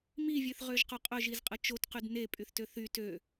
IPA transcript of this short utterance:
mivʲøθʁøʒqo qʼœʒizqʼə t͡ʃotqyd nepʼyθtø θy tø

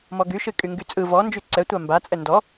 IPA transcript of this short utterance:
mɔɡyʃɨ kʼyŋɡyt͡sʼɯ vɔnd͡ʒy ǀɛtʷa mbat͡sʼɛ ndɔ

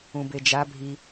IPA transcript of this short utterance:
ũbed͡ʒa bʱi

